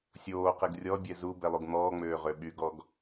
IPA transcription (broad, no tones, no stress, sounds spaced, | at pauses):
sʲ oː q e ɡ rʲ ɔ bʲ ɛ z u b ɛ lˠ u ɡ n̪ ɔː ŋ͡m øː ʁ ø ɓ y ɡ ɔ ɡ